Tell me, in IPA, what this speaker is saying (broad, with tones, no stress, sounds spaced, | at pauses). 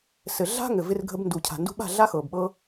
s ɘ˨ ɮ a̤˦ ŋ ɘ˨ v ɪ˧ r ɡʱ ə˧ b n d u˨ cʰ a̤˨ n d ṳ˧ ɓ a̤˦˨ ɮ a˦ x ɤ˨ b ɓ ɤ˦